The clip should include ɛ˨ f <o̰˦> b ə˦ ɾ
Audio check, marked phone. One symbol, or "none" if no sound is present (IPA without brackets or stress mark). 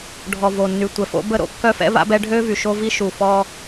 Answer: o̰˦